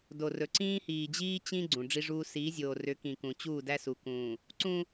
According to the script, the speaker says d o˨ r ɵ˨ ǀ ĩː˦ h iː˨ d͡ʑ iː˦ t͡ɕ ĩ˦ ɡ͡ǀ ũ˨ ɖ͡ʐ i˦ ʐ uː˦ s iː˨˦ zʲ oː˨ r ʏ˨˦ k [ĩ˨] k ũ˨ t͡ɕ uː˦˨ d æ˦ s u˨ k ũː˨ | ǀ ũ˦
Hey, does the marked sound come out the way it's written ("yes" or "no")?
yes